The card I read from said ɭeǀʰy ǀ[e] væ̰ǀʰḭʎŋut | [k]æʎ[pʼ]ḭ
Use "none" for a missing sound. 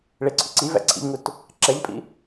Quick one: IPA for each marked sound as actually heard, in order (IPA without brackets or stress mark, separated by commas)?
i, ǁ, pʼ